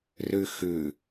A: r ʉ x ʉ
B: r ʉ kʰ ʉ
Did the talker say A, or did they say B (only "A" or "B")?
A